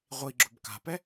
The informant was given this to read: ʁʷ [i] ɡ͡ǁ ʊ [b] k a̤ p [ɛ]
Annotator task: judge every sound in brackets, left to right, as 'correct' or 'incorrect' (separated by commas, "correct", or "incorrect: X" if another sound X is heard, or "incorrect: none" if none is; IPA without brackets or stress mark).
correct, correct, correct